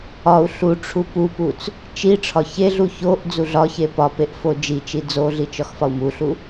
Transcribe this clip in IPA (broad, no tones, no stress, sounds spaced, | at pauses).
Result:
ɒ u̯ ɬ u ʈ͡ʂʰ u p u p u t͡s | t͡ʃ i ʈ͡ʂʰ ɒ ç e ɮ u ç o ʔ d͡z u ɮ ɒ ç e p ɒ p e ʔ f o d͡ʒ i t͡ʃ i d͡z o ɮ i t͡ʃ ɒ x f ɒ u̯ m u ɬ u